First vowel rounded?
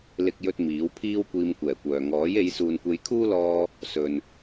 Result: no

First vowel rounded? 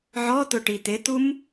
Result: yes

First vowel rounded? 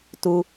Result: yes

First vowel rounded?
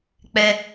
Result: no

